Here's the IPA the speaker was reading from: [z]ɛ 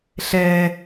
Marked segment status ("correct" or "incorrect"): incorrect